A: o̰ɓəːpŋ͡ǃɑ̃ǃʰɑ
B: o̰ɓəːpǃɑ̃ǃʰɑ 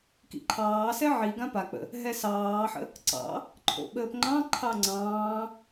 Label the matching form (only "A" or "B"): A